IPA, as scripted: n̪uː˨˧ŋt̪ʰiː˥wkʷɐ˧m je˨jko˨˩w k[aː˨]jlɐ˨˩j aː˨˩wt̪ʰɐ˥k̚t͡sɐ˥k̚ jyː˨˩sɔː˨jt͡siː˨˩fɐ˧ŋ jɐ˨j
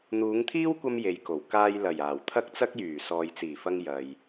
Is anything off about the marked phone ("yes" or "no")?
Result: yes